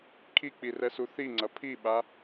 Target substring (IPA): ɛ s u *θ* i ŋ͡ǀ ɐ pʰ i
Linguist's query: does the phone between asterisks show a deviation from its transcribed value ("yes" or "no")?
no